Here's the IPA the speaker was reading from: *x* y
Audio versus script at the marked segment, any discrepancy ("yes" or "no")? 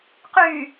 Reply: yes